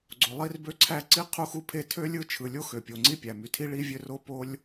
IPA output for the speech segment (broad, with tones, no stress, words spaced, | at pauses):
ɡ͡ǀo˩lˠi˥rbø˥ǀʰæ˥ ǀi˥ qʰu˥xu˥pʰe˥ tʰø˥lʲɯ˥ t͡ʃʰɯ˩lʲo˥xø˩pʲo˩ ŋ͡ǀi˥pʲæ˩my˩tʰi˥ ɭi˥vʲø˥ro˥ po˥lʲ